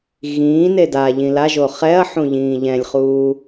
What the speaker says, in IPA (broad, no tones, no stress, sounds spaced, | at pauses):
ɣ ĩː n e d a ʎ ĩ l a ʒ o χ ɛ ɐ̯ ħ ũ ʎ ĩː ʎ ɛ̃ lʲ χ uː